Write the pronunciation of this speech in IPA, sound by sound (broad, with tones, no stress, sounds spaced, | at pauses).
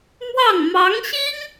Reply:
m w ɑ˥˩ ŋ m ɑ˧˥ ŋ ɕ i˥ ŋ